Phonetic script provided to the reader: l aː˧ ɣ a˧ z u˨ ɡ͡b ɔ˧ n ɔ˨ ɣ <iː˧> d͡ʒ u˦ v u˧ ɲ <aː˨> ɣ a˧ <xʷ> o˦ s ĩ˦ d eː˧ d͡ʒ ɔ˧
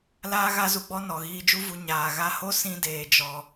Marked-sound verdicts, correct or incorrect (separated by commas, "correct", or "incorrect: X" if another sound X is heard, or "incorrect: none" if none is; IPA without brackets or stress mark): correct, correct, incorrect: h